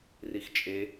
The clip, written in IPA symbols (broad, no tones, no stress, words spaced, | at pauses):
rixt͡ʃʼe